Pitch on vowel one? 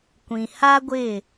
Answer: low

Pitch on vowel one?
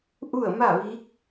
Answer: falling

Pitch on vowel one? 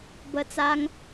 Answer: high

